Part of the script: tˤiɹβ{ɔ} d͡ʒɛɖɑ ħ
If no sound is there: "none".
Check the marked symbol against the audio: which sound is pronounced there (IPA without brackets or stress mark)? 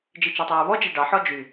ɔ